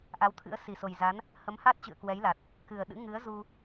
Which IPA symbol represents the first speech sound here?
ʔ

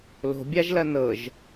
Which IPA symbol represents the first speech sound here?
l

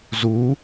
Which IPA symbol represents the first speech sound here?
z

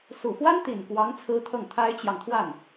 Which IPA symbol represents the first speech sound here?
s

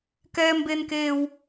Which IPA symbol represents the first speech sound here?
k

